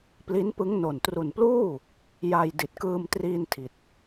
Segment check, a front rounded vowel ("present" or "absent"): absent